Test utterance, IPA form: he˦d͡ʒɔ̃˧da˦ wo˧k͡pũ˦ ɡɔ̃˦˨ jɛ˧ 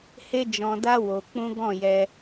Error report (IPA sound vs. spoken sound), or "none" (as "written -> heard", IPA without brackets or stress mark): none